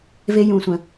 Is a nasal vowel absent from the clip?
no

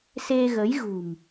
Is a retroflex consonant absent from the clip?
yes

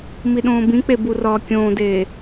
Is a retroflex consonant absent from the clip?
yes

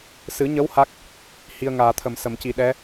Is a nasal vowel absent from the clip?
yes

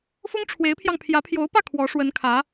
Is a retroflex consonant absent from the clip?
no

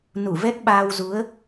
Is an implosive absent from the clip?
no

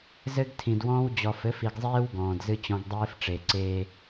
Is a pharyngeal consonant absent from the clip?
yes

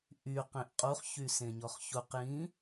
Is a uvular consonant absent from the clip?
no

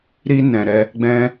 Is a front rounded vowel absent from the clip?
yes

